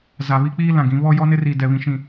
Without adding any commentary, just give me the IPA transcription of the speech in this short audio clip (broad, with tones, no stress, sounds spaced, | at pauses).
z a˨ β i˦ k͡p iː˦ l ã˨ ɡ ĩ˨˦ β ɔ˦ j ɔ˦ n ɪ˦ r iː˨ d ɛ˨ β ĩ˨ ʃ ĩ˨